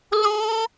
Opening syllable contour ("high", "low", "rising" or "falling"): high